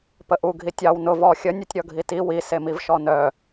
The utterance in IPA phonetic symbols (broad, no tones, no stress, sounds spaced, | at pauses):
p ə ʔ u ɡʱ i tʲ ɑ w n ʊ v ɔ xʲ ə nʲ ʉ tʲ ɾʲ ɔ ɡʱ i t i w i s e m i v ʃ ɔ n œ